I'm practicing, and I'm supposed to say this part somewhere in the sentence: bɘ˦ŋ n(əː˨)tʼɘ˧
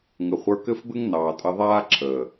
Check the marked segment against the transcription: incorrect: ɑː˨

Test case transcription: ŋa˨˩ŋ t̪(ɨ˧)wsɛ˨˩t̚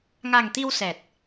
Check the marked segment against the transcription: incorrect: i˧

